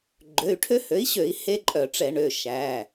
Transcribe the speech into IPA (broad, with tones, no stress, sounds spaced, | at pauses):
ɡ͡ǃ ø˩˧˩ y̯ ʈʰ ø˦ h ø˩˥ i̯ ɕ ø˧˩˧ i̯ h e˦ ǃʼ œ˧˩˧ ʈ͡ʂ ɛ˧˩˧ ɳ ø˩˧˩ ʃ æ˩˧˩